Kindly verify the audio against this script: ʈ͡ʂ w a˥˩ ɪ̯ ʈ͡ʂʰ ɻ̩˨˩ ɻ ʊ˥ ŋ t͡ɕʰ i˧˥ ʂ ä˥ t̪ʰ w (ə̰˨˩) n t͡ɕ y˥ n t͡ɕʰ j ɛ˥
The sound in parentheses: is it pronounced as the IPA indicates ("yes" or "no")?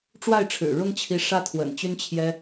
yes